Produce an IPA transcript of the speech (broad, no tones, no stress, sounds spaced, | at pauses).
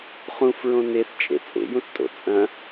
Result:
χ ũ f ɹ õ n e θ t͡ʃʼ ḛ t͡sʼ ḛ j ũ θ tʼ o̰ t͡sʼ ɐ̃